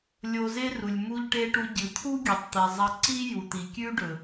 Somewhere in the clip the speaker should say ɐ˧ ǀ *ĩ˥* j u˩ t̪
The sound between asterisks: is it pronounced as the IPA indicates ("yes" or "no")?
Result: no